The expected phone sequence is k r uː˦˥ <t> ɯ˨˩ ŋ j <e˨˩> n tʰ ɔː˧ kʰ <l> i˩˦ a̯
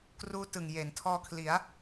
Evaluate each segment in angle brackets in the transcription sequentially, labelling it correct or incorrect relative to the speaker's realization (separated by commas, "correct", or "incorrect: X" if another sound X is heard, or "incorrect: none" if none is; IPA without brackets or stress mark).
correct, incorrect: e˩˦, correct